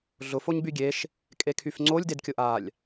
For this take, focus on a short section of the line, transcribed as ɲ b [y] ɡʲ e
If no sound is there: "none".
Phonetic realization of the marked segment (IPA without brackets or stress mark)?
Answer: y